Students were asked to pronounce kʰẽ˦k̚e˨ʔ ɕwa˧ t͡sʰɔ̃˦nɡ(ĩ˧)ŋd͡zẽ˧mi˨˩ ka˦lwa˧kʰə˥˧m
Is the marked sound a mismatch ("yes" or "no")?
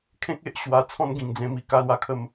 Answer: yes